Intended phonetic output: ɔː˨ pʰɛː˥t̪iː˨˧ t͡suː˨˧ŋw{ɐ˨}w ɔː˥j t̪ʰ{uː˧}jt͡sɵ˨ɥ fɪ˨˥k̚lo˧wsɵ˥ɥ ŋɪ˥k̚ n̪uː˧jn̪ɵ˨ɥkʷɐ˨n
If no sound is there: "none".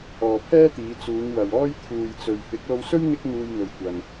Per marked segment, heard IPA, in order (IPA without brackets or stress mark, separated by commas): ɐ˨, uː˨